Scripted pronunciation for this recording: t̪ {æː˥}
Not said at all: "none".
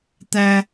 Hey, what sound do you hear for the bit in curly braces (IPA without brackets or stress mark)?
æ˥